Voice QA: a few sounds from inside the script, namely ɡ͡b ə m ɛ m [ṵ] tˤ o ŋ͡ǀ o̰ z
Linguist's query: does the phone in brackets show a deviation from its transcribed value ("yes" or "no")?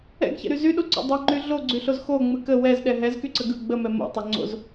yes